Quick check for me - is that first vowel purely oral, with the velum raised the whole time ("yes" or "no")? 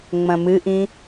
no